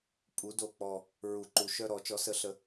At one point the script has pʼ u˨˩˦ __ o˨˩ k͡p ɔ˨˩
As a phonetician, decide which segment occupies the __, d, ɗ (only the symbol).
d